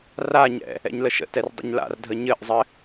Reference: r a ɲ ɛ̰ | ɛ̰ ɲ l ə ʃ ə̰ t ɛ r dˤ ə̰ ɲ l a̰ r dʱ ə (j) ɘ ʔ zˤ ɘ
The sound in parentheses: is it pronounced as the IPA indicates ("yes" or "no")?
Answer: no